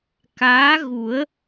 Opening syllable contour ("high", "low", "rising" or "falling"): rising